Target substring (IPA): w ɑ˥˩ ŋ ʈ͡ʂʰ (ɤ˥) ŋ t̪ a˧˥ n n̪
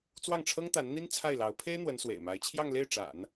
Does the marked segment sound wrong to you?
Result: no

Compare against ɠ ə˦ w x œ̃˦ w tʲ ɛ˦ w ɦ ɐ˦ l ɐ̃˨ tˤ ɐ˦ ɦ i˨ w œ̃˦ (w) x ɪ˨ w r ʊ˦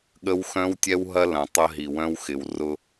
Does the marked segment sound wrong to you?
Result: no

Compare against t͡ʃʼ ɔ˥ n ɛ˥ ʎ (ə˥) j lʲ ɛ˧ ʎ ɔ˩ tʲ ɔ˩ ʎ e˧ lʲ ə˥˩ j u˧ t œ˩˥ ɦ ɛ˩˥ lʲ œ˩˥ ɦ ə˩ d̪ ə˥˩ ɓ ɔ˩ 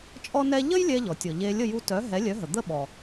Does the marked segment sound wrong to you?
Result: no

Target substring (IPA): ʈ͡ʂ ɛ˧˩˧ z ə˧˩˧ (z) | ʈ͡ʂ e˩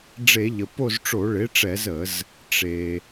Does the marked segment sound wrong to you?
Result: no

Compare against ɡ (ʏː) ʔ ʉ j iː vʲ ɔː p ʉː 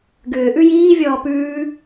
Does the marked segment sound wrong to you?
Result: no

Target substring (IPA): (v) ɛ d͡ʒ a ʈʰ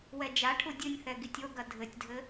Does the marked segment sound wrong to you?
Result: yes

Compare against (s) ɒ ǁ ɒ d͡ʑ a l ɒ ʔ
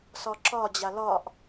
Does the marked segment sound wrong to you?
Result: no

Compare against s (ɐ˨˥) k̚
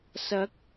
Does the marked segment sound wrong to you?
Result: no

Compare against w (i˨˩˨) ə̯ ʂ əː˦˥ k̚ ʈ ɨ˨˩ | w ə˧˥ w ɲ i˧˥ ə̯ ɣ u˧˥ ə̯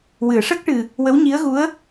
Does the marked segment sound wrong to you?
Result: yes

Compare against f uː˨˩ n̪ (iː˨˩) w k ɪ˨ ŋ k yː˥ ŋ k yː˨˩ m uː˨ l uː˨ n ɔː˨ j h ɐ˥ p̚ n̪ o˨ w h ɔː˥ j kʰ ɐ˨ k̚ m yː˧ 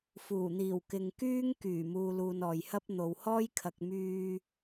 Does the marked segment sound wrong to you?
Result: no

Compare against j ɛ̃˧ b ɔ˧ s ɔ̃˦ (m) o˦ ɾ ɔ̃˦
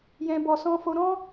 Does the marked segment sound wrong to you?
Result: yes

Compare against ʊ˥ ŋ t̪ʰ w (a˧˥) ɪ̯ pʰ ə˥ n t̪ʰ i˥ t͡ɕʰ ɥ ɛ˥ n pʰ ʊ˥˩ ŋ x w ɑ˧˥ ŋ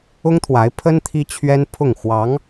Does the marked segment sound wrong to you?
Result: no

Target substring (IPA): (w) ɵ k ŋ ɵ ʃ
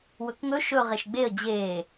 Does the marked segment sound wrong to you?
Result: no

